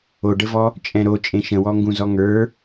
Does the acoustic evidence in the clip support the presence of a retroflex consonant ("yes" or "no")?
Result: yes